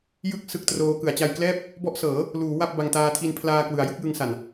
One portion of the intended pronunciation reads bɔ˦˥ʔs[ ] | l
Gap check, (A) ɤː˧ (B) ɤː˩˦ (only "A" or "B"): B